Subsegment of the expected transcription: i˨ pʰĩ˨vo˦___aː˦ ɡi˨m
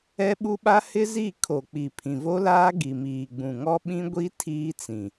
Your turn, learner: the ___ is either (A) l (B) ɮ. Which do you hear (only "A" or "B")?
A